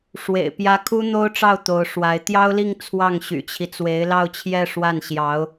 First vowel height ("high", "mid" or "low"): mid